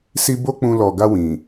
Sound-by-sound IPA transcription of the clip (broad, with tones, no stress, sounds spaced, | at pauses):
s i˦ b o˦ k͡p ũ˧ l ɔ˨ ɡ a˧ w ĩ˨